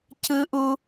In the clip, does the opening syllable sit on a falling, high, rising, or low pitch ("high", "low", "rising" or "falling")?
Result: high